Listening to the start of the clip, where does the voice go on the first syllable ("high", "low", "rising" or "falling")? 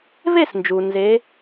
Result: falling